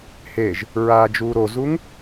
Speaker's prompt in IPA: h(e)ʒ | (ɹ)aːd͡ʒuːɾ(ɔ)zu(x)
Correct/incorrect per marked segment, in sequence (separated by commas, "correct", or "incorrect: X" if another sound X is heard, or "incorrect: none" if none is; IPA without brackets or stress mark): correct, correct, incorrect: o, incorrect: ŋ